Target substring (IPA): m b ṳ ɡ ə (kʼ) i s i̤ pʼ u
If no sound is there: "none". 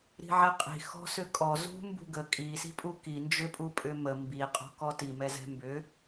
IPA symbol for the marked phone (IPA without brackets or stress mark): kʼ